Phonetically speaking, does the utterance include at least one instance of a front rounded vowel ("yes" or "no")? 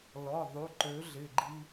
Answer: yes